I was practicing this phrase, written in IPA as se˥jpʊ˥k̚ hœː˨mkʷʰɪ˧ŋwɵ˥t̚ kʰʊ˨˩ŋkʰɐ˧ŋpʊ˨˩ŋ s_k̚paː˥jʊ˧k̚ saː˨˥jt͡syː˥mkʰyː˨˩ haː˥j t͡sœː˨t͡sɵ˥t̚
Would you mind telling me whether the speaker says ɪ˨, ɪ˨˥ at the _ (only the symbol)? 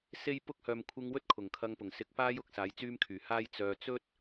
ɪ˨˥